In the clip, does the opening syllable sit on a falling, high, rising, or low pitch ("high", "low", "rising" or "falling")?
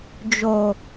low